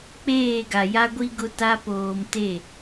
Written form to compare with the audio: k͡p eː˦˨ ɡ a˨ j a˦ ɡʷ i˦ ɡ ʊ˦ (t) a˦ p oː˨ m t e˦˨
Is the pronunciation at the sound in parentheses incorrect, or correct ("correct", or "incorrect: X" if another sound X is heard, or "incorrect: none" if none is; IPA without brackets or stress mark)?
correct